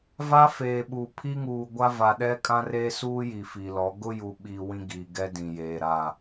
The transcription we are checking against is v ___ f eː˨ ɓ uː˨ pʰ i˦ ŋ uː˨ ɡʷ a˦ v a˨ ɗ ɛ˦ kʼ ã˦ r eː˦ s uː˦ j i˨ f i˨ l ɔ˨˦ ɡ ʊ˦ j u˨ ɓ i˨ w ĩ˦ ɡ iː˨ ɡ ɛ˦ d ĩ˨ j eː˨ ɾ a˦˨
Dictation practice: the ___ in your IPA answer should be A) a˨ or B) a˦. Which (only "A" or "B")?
B